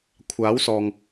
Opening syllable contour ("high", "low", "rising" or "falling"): rising